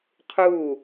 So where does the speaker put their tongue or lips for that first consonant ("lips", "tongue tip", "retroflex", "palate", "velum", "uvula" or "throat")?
uvula